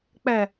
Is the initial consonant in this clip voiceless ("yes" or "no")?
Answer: yes